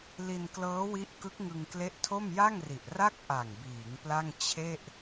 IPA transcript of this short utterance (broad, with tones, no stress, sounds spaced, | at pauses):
l i˧ n k l ɤː˦˥ w i˦˥ ʔ k ɯ˦˥ k̚ ŋ ɯ˧ ŋ k l e˦˥ ʔ tʰ o˥˩ m j a˥˩ ŋ r i˨˩ ʔ r a˥˩ k̚ ʔ a˨˩ ŋ b iː˩˦ ŋ p l a˥˩ ŋ t͡ɕʰ e˥˩ ʔ